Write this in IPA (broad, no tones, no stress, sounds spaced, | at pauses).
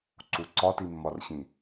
ǀ u ǀ ɒ t i mː ɒ r ɕ ĩ